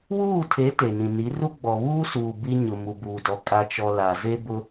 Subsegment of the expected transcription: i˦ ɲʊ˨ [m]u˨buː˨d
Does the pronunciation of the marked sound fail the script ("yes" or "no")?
no